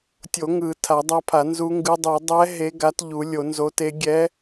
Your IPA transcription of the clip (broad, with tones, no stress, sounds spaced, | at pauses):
tʲ o˨˩˦ ŋ ɯ˨˩˦ tʰ a˨˩˦ dˤ a˧˥ pʰ a˨˩˦ n z u˧˥ ŋ ɡ ɯ˧˥ dˤ u˨˩˦ dˤ ɛ˧˥ ɦ e˧˥ ɡ a˧˥ t ʎ u˨˩˦ lʲ o˨˩˦ n z o˧˥ t e˧˥ ɡʲ ɛ˧˥